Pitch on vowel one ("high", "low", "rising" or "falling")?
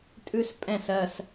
high